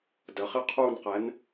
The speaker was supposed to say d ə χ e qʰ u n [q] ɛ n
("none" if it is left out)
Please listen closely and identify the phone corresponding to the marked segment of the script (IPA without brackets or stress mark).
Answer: q